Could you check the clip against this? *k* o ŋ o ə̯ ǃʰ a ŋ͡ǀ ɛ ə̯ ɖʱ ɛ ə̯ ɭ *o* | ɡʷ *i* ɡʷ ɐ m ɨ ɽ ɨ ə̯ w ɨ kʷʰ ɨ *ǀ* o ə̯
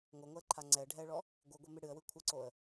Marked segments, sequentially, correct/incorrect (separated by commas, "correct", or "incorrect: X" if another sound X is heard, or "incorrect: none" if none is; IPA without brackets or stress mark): incorrect: ŋ, incorrect: ɔ, incorrect: ɨ, correct